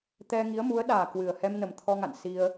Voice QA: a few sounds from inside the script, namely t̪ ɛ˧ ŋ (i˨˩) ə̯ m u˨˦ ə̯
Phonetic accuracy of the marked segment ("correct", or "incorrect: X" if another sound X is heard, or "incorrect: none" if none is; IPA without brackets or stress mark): incorrect: i˨˦